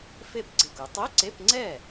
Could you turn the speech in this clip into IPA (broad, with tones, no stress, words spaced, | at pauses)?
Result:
fe˥˩pɡ͡ǀe˧˩ku˩˧ tˤe˧˥˧ǀe˧˥˧pŋ͡ǀɛ˥˩